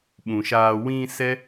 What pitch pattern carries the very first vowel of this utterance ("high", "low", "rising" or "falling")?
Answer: low